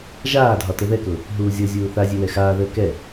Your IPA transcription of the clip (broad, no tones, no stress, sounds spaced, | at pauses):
ʒ aː dʱ ɒ t ə ð ɛ k ʊ | ɦ uː zʲ ɤ zʲ uː θ a zʲ e w ɛ x aː ð əː k ɛ